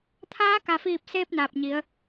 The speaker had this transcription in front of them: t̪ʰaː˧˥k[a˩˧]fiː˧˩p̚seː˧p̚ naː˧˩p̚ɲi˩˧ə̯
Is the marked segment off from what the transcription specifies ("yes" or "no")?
yes